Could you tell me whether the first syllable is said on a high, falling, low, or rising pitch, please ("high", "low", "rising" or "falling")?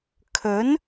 rising